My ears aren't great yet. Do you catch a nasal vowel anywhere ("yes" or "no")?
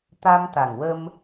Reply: no